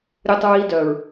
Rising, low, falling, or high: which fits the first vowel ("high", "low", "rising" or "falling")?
high